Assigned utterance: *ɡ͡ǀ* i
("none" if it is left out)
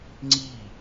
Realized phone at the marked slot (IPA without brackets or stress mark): ŋ͡ǀ